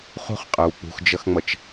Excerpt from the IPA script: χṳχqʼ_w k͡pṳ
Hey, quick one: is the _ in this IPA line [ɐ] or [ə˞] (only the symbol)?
ə˞